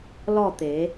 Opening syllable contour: falling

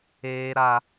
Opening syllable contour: high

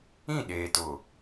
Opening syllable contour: falling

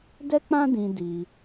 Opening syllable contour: high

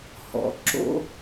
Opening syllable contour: low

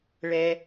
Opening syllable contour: high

